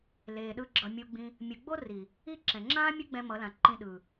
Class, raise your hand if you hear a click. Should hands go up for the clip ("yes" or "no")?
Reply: yes